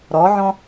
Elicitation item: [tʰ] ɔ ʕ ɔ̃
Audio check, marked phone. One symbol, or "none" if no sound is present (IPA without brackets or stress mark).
ɾ